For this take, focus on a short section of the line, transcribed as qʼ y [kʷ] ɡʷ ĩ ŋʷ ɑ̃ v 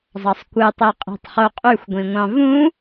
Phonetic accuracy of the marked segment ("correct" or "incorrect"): incorrect